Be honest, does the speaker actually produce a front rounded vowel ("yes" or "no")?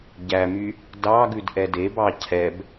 yes